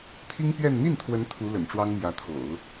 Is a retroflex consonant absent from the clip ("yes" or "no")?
no